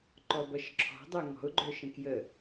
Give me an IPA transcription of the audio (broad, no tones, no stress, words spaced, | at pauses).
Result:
ǃɔbʌʃǁʰɔ̤dˤœ ŋɔ̤ʊ̯ɡ͡ǃœʃə̃ kjə